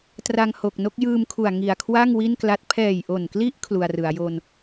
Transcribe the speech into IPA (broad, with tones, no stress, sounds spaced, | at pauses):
t r a˧ ŋ h o˨˩ k̚ n o˦˥ k̚ j ɯː˧ m kʰ u˨˩ a̯ ŋ i˨˩ a̯ kʰ w a˥˩ ŋ w i˥˩ n k l a˦˥ t̚ pʰ ɛː˨˩ j ʔ o˨˩ n k l i˦˥ ʔ kʰ l u˧ a̯ r ɯ˩˦ a̯ j o˧ n